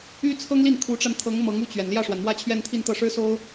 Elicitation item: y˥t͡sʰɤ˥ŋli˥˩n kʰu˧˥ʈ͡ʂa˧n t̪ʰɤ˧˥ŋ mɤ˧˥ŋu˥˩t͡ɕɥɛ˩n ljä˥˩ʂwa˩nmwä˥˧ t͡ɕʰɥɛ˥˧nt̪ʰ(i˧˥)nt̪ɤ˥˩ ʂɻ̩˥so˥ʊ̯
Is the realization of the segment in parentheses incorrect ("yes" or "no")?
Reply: yes